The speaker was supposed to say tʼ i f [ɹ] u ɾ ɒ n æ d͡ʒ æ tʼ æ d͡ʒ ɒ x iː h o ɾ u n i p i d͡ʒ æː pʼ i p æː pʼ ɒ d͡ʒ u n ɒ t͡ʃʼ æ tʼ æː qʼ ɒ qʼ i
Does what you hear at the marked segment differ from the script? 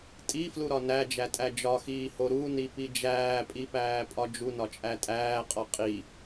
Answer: yes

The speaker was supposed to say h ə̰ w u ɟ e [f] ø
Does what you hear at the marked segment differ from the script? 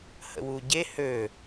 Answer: yes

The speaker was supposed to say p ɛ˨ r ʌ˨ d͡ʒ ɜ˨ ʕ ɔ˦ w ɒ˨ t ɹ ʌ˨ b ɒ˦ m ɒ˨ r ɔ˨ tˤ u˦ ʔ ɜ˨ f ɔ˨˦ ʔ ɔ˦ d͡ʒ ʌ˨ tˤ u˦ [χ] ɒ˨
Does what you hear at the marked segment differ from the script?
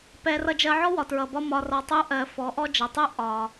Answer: yes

